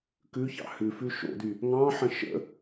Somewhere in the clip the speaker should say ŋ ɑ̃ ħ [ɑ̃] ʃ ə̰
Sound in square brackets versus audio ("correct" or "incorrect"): incorrect